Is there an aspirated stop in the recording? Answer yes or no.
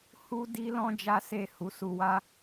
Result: no